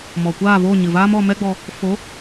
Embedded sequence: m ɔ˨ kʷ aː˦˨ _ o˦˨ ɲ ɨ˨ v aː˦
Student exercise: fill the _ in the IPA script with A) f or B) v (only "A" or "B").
B